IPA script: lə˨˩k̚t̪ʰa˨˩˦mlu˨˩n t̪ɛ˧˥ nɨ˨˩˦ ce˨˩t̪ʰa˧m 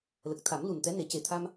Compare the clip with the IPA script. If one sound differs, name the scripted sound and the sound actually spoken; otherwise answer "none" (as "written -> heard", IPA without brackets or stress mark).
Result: ɨ˨˩˦ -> e˨˩˦